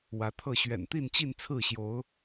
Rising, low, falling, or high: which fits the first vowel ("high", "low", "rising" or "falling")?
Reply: rising